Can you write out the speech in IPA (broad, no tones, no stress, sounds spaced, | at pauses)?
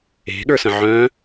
e̤ ɠ ə˞ s ə̃ ʕ œ̃